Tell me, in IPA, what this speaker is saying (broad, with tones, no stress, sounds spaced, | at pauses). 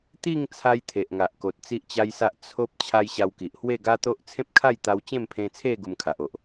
t̪ i˥˧ ŋ t͡sʰ a˦ j t̪ʰ e˨ ʔ ŋ a˨ ʔ k o˨ t̚ t͡s i˦ ʔ t͡ɕ a˦ j s a˦ ʔ t͡sʰ o˦ p̚ t͡ɕʰ a˦ j ɕ a˧ w k i˨ ʔ h w e˥˧ ɡ a˦ t̪ o˦ ʔ t͡sʰ ẽ˦ p̚ kʰ a˥˧ j t̪ a˧ w t͡ɕ ẽ˥˧ m pʰ ẽ˧ t͡sʰ e˥˧ ɡ u˧ m kʰ a˨ ʔ o˨ ʔ